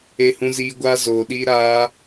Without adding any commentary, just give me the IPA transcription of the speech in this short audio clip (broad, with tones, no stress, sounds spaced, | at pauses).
e˧ h ũ˧ z iː˧ ɡʷ aː˧ z oː˨ ɗ iː˧ ɾ aː˧